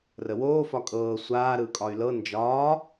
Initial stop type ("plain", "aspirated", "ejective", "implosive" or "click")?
ejective